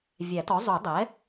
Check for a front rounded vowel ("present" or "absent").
absent